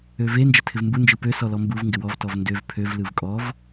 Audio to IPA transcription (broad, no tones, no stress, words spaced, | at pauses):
øve nd͡ʒətʰɪvmbu nd͡ʒɯpø sɔlɔmbuv ŋɡɪwɔv tɔvndøv pʰøv lɯvkʼɔv